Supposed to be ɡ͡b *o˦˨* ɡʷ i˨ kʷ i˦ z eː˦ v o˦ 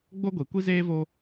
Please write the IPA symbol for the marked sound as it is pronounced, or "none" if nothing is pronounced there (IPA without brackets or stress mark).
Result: o˦